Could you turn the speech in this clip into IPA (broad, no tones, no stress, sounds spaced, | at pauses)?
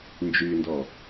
n d͡ʒ y n d ɔ